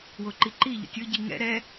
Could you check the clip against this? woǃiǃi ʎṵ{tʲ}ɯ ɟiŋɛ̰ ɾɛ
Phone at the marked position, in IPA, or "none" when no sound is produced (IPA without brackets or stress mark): tʲ